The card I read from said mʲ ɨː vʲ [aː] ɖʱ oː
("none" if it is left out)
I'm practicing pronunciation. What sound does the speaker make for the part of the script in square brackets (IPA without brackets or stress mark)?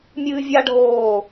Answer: a